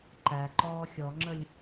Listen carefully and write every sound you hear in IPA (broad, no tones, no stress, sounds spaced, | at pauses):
ǃ æ ǃ ɔː xʲ ɔ ŋ͡ǁ ə lʲ